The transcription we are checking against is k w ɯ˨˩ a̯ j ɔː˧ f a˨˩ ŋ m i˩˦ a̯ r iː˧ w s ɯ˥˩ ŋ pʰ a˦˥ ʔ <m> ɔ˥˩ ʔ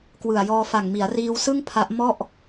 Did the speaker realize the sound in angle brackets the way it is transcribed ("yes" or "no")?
yes